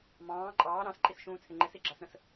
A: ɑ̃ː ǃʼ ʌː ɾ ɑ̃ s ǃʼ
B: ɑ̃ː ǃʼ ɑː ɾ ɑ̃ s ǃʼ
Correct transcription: B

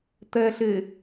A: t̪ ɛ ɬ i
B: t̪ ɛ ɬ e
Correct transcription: B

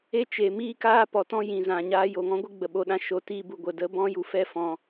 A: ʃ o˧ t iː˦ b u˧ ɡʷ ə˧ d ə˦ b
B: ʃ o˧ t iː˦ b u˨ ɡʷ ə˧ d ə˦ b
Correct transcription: A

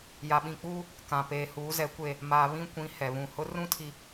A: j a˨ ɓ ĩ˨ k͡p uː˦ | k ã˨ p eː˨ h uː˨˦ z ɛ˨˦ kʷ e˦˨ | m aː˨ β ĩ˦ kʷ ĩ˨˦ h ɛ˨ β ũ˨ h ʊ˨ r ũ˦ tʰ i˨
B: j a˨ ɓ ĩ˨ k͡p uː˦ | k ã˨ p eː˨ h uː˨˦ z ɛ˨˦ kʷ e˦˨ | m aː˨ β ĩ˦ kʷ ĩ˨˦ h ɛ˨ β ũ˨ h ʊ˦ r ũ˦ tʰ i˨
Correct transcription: B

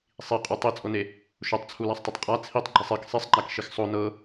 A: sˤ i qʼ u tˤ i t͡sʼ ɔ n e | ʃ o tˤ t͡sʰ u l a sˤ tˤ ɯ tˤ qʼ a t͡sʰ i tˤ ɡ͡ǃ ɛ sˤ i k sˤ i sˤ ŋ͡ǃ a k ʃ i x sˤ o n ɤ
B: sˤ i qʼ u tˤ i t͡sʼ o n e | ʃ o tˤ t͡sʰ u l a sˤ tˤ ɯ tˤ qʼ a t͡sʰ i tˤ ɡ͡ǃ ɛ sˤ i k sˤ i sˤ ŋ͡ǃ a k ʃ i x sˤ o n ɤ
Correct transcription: B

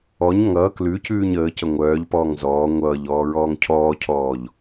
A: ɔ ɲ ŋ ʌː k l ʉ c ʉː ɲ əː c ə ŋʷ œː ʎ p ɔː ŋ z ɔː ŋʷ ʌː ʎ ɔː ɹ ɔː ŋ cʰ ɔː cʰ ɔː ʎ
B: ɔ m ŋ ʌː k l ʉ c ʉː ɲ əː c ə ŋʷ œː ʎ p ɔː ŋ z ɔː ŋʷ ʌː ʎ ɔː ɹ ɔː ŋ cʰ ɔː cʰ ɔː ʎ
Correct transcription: A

